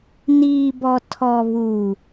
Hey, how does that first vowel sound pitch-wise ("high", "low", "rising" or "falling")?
low